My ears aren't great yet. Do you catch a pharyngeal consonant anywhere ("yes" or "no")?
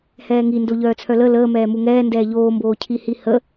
no